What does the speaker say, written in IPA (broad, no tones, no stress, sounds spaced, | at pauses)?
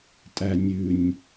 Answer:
tʼ æ nʲ ʉ nʲ